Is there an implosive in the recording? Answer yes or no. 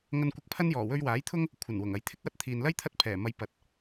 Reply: no